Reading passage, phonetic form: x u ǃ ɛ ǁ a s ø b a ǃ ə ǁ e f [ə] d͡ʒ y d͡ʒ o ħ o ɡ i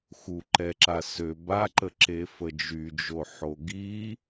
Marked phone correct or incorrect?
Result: correct